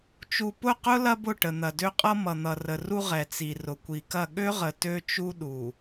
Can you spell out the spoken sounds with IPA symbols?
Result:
t͡ʃ u˨ p ʊ˦˨ q ʊ˦ l ɐ˦ b ʊ˦˨ ʈ ə˨ n̪ ɐ˨ d ø˦ qʼ ʌ˦ m ʌ˨ n̪ ʌ˨ r ə˨ r u˦ ʁ ɛ˨ t͡s i˨ r ʊ˨ kʷ i˨ k ɐ˦˨ ɠ ø˦ ʁ ə˨ t ø˦ t͡ʃ u˦ ɗ u˨

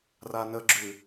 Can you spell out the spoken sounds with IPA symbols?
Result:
r a n ə ɡ͡ǁ ʉ

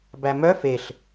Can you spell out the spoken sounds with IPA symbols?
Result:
b æ m œ f e ɬ

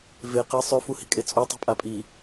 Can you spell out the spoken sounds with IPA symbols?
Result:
v e q e sˤ ʉ f u h i̤ kʼ e t͡sʼ u tˤ o̤ pʼ a pʼ i

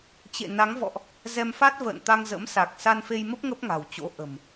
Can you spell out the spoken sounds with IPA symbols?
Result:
t͡ɕ ḛ˧˨ n a˨˦ ŋ v ɔ̰˧˨ ʔ | z ɛ˧ m f a˦˥ t̚ v ə̰ː˧˨ n t̪ a˧ ŋ z ə̰˧˥ m s a˨˩ k̚ s a˧ n f e˧ j m ə˦˥ p̚ ŋ ə˦˥ p̚ ŋ a̤˨˩ w t͡ɕ o̰˧˥ ʔ ə̤˨˩ m

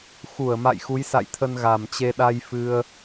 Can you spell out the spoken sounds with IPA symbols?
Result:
x u˧˩ ə̯ m a̰˧˨ j x u˨˦ j s a̰˧˨ j t̪ʰ ə˧ n ɣ a˨˩ m t͡ɕ e˧ ɗ a˧ j f ɨ˧ ə̯

